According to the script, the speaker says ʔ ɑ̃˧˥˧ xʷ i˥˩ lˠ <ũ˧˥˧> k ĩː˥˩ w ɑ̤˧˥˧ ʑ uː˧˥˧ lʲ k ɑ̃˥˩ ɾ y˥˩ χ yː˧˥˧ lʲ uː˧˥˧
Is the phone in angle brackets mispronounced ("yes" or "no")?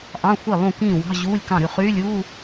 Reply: yes